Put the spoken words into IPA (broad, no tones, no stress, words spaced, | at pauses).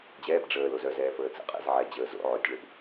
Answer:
d͡ʑɛːb ɖ͡ʐəːl ozœzɛː fəːt͡sə̰qʼɛ̰z ʕɛd͡ʑəː zo̰ ʕotʲɭəb